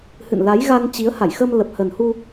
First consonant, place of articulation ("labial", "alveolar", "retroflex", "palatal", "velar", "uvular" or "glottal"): glottal